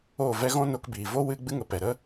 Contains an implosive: no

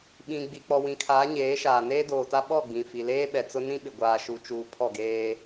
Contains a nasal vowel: yes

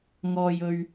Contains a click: no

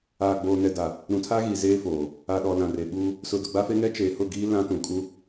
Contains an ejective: yes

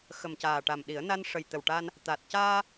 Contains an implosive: yes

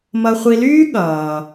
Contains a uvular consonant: yes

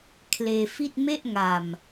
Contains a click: no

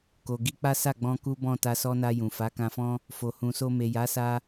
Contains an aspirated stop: no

